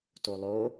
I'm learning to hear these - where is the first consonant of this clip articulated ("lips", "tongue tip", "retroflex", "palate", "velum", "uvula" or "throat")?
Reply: tongue tip